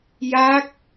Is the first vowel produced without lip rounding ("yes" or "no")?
yes